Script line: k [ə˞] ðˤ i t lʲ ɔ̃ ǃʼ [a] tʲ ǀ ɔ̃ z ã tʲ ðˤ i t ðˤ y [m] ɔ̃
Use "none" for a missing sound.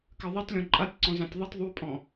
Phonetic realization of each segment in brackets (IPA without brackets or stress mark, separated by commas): ɜ, a, pʼ